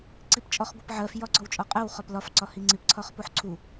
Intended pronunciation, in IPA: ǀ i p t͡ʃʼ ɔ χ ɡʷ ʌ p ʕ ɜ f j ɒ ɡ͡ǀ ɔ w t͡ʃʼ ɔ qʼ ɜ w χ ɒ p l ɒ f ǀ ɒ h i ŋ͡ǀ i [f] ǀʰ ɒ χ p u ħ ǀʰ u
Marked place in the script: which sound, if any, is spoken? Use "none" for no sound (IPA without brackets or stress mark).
p